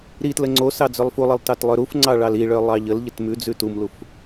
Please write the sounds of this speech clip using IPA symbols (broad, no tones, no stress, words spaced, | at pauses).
ɾitlə ŋ͡ǀosɑ d͡zœlˠfulˠəlˠ tɑtlˠœɾufŋ͡ǀɑ ɭɑliɭœ lˠɑʎəlʎət mʉd͡zʉ tumluf